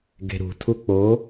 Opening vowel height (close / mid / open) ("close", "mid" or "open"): mid